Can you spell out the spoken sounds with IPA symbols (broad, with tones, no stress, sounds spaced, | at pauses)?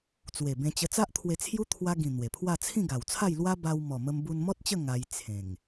t͡s w e˨˩ b ẽ˧ t͡ɕ ə˧ t͡s a˦ ʔ t̪ʰ w e˧ t͡sʰ j u˦ t̪ʰ w a˧ ɡ ĩ˨˩ n̪ w e˨˩ pʰ w a˥˧ t͡sʰ ĩ˥˧ ɡ a˨˩ w t͡sʰ a˥˧ j l w a˦ b a˧ w m ɔ˨˩ m ə˧ m b u˧ n m ɔ˦ t̚ t͡ɕ ə˥˧ ŋ a˧ j t͡sʰ ẽ˨˩ ŋ